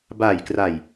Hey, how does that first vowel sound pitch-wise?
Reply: low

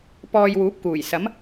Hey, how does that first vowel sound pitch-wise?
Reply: low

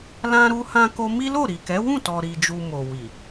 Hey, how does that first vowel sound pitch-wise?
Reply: high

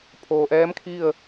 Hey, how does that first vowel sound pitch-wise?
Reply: low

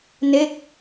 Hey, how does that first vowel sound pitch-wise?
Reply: falling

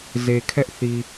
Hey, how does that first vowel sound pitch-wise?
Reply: low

